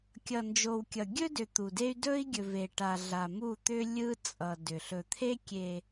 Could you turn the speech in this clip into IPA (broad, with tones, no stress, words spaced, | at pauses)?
kʲʌ˨nd͡ʒo˨wkʲʌ˨ ɡʲɵ˦dʏ˨ t̪u˨de˦y̯ dɵ˦i̯ɡʲɵ˨v e˨ʈa˨ɮa˨ mu˦˨t̪ʏ˦ lʲɯ˦t͡sʼʌ˨ dʏ˨ ɬɵ˨t̪ʰe˦kʲe˨